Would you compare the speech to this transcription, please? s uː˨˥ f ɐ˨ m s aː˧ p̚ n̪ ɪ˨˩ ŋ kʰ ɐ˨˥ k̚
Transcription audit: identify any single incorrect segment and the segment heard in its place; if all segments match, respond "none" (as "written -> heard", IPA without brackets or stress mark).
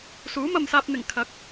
f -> m